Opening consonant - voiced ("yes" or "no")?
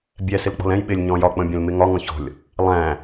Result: yes